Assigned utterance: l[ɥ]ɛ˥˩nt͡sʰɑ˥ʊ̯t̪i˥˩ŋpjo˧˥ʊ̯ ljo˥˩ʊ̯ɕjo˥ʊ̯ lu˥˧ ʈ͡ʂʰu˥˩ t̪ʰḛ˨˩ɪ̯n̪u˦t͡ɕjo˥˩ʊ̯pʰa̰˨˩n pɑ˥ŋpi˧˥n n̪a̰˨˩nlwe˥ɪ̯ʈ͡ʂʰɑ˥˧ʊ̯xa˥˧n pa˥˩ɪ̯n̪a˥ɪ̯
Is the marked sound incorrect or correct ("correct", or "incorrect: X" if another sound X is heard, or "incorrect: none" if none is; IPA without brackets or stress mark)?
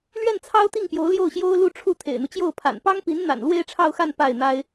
correct